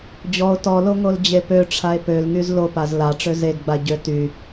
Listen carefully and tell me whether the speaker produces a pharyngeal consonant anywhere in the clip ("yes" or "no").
no